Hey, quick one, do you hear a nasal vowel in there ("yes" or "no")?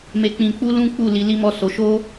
yes